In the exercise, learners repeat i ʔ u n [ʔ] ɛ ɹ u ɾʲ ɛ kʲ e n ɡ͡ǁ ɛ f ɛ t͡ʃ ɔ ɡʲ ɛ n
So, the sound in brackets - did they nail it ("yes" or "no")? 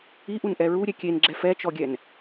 yes